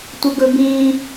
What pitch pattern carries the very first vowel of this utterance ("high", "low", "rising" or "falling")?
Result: high